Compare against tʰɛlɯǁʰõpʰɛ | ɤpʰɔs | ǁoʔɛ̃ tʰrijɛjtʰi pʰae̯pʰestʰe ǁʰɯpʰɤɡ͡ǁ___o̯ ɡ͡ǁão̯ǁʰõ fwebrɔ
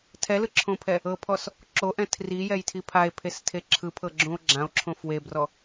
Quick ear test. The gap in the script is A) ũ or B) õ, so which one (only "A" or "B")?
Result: A